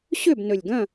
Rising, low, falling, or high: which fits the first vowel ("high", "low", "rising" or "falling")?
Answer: falling